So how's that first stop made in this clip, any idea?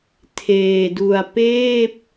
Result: aspirated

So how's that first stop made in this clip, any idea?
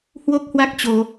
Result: plain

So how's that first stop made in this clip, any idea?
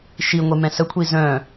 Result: aspirated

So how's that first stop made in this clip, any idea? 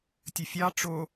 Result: plain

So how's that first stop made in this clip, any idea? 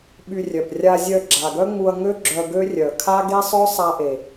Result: implosive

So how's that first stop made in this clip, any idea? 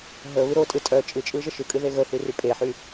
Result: ejective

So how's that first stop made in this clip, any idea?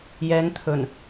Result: aspirated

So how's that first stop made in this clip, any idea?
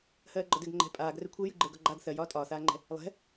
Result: click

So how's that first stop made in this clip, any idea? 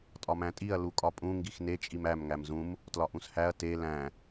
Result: ejective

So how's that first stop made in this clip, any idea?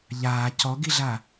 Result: plain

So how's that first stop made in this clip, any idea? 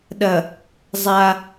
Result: implosive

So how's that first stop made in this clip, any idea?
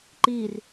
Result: click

